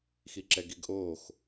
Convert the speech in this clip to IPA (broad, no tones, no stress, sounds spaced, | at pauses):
x i ǁ ɛ ɡ i ɡ ʔ oː x